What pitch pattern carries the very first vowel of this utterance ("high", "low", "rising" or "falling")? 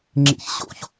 high